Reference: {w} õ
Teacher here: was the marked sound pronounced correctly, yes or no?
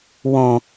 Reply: yes